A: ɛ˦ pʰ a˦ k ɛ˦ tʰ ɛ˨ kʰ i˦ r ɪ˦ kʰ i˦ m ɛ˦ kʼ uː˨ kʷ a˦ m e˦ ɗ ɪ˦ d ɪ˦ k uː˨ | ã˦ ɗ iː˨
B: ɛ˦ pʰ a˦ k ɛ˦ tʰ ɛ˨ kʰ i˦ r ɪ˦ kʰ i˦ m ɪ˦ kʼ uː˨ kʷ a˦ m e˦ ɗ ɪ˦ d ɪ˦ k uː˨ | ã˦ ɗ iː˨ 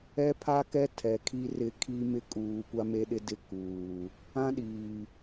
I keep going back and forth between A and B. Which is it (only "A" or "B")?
B